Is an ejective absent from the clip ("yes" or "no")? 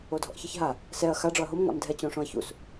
yes